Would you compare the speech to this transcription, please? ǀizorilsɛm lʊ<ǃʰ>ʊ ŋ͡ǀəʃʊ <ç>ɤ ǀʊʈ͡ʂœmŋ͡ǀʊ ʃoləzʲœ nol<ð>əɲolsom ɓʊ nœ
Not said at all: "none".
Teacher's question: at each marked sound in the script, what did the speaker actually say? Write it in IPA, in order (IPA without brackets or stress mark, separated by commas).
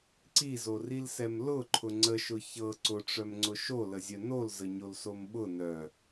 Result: ǃʰ, ç, z